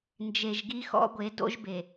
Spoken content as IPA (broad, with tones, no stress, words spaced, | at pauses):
nd͡ʒe˨ʒɡi˦xɔ̰˦ɡʷe˨˦ do̰˦ʒbe˨